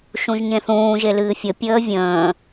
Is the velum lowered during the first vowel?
yes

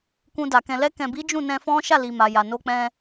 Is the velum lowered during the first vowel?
yes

